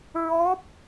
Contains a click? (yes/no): no